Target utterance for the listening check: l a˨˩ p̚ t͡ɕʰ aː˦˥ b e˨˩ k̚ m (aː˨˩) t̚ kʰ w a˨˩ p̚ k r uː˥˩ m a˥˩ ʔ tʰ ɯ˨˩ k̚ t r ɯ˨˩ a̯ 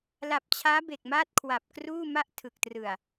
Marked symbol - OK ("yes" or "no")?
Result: no